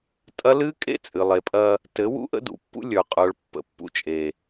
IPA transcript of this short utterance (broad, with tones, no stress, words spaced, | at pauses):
tʼɐ˦ lɨ˦ kʼḛ˦ t͡sʼɨ˨lˠe˨pʼɐ˦ | tɘ˨˦wṵ˦ʔə̰˦ dṵ˨pːṵ˦lʲə˞˨qʼə˞˨ɭ pːə̰˨pːṵ˨t͡ʃʼe˨